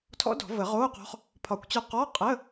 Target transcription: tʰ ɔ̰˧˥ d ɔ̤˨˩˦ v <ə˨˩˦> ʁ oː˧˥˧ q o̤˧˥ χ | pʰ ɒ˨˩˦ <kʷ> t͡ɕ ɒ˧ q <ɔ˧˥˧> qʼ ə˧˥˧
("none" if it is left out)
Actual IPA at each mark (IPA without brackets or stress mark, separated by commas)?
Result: ə˨˩˦, kʷ, ɔ˧˥˧